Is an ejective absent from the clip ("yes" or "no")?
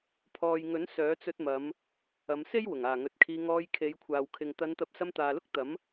yes